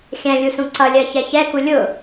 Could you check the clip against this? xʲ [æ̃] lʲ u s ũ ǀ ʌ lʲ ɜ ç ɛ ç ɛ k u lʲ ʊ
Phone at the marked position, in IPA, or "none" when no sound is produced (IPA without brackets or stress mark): æ̃